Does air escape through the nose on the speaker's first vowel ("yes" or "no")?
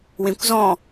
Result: yes